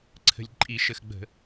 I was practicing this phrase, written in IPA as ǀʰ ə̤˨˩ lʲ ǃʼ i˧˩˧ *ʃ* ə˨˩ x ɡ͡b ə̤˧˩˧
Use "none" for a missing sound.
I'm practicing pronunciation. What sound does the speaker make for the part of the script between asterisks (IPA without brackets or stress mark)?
ʃ